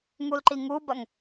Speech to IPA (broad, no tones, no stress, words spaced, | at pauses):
ŋulǃiŋubɐŋ